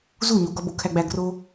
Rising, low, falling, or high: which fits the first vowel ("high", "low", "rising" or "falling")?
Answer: falling